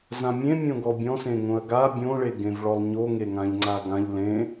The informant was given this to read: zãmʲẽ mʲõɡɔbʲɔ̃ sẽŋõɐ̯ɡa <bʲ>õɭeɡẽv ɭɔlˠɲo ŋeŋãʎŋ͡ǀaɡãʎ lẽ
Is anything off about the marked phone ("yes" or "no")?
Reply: no